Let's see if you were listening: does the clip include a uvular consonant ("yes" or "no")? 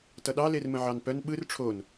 no